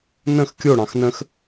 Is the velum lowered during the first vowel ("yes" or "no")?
yes